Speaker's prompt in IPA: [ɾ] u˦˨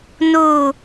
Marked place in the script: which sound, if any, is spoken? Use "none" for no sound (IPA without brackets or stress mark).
n